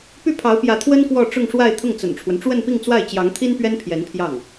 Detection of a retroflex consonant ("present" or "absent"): present